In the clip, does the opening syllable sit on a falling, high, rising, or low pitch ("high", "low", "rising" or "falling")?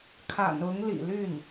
low